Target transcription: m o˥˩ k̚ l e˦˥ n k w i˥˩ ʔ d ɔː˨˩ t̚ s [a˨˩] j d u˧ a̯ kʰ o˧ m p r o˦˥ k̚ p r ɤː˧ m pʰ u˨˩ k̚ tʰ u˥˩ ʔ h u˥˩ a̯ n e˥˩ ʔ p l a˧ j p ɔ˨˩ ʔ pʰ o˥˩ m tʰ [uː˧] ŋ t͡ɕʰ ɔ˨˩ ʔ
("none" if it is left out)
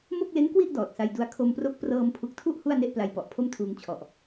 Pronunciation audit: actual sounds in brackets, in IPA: a˧, uː˧

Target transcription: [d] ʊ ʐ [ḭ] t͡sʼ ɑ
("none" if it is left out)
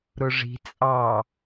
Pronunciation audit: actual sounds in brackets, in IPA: ɾ, i̤

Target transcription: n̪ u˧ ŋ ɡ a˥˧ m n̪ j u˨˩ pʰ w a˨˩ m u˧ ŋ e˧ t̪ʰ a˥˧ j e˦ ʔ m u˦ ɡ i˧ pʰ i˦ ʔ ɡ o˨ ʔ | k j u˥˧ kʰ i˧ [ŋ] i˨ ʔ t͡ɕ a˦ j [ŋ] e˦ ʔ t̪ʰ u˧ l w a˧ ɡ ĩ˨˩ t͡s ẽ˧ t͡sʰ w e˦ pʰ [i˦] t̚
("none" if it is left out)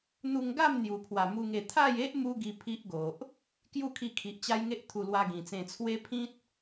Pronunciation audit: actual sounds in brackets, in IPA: kʰ, ŋ, ĩ˦

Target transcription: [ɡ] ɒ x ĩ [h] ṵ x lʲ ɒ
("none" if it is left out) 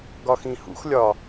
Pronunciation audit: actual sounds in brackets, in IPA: ɡ, h

